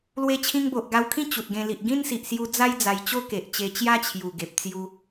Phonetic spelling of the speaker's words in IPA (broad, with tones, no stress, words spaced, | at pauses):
lwe˧t͡ɕʰĩ˧ŋ bo˨ʔɡa˧wkʰĩ˥˧ t͡ɕu˨t̚ɡẽ˧ li˨ʔɡĩ˦nsi˨ʔ sju˧d͡za˦j d͡za˧jt͡ɕo˦ ke˨ʔ t͡ɕe˧t͡ɕja˦ t͡ɕʰju˨˩ɡe˨p̚t͡sju˧